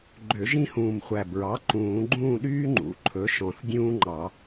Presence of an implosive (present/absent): present